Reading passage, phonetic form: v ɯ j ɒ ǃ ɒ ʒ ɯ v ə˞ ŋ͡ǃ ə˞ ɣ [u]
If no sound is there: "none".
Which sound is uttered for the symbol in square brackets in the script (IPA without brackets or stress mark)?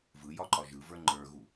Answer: u